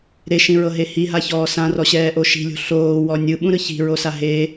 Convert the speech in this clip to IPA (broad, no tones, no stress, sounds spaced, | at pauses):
ɾ e ʃ ĩ ɹ ɤ ɦ e h i ɦ a ç ɔː s ã r ɔ ɕ ɛː ʔ o ʃ i̤ lʲ o̤ ɬ oː w ɔ nʲ ɯ ɓ ũ ɾ ɯ ç i̤ ɹ o s a ɦ e